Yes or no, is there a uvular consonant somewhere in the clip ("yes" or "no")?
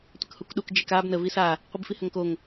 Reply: yes